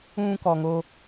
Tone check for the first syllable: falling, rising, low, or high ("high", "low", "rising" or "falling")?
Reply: high